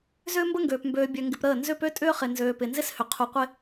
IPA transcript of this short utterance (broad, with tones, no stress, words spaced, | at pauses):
zʏː˦mbə˦ŋɡøː˨p mbøː˨bʲø˨ŋɡɪ˨p ɾəː˦˨ nzʏ˦˨pø˦tʼʏː˦χɪ˨ nzøː˨pɪ˨nzɪ˦shʏ˨ qʰu˨qʷɪ˦